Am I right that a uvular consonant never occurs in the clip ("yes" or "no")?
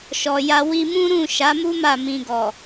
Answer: yes